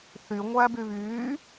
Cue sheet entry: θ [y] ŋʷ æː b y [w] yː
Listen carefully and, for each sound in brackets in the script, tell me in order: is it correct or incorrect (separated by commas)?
correct, incorrect